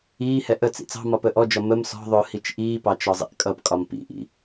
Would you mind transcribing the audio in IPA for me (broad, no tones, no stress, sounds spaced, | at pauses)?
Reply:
iː h ɛ ʔ ə t͡s ḭ t͡s ɑ̤ m ɒ p əː ʔ ɔ d͡ʒ ɒ m ə m s ɔ̤ ðˤ ʊː h i t͡ʃ ʔ iː p ɑ t͡ʃ ɒ zˤ ḭ ʔ kʼ ʌ p kʼ ɒ m p ḭ ʔ ḭ